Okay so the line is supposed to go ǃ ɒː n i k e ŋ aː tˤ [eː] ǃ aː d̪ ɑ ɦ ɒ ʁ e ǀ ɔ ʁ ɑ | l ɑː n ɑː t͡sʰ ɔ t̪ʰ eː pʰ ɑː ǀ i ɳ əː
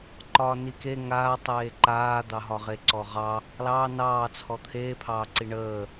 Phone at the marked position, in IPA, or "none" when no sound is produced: eː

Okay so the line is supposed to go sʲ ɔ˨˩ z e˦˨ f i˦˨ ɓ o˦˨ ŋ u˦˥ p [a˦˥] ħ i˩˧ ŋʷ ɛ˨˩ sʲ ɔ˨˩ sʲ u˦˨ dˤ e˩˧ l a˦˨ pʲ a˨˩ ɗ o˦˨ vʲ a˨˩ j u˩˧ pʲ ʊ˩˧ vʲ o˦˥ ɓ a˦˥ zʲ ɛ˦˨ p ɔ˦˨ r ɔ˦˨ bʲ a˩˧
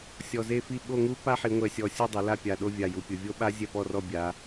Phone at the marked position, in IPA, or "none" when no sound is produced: a˦˥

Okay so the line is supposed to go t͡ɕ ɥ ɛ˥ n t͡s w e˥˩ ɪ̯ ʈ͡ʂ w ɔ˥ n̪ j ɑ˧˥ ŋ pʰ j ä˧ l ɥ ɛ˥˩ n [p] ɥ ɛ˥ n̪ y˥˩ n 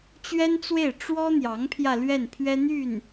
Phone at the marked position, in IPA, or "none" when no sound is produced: pʰ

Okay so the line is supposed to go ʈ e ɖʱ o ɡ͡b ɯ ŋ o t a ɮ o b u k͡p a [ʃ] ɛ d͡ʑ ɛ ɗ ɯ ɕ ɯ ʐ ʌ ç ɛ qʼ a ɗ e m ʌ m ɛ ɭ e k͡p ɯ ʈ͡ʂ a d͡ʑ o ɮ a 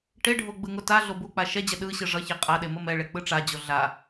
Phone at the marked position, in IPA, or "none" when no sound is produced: ʃ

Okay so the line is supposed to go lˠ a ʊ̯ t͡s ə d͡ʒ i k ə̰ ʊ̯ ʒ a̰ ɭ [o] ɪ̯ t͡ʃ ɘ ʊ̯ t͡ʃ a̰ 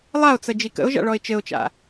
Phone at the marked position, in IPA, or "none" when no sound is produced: ɔ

